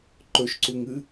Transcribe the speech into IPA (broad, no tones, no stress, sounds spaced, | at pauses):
ǃ ɵ ʃ ǀ u ŋ ɨ